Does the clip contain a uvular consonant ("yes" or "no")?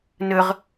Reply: yes